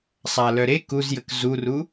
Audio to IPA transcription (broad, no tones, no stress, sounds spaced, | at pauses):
sˤ a l œ ɾ e k u z j ə k z u r u